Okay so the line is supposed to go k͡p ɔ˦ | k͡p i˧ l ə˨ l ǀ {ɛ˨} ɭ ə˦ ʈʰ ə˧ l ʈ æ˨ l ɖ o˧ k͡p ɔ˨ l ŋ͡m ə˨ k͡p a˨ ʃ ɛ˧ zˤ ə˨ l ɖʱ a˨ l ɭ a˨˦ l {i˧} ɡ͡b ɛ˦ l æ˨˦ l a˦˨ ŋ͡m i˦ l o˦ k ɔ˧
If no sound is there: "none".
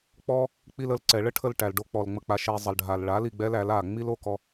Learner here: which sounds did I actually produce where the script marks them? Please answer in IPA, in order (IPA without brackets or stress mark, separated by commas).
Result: ɛ˨, i˨